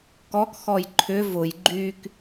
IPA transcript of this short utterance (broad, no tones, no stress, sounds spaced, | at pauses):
k ɔ k x ɔ j ǃʰ ʏ v ʊ j ɡ͡ǃ y k